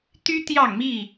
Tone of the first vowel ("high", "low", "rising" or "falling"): high